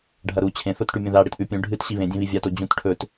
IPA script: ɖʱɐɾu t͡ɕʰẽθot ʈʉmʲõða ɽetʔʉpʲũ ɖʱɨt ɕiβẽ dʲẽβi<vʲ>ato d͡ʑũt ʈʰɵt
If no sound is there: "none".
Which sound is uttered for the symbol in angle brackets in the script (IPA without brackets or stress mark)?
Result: vʲ